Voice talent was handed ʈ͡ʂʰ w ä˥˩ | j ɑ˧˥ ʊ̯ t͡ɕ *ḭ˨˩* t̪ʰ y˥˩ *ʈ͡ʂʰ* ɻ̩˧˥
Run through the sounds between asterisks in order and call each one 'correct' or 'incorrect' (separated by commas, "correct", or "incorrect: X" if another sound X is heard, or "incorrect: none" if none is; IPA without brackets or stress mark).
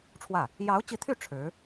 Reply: incorrect: i˧˥, correct